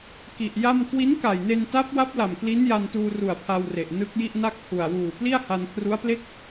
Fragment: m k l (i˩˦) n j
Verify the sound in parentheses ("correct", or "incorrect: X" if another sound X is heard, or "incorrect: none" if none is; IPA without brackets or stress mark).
incorrect: i˦˥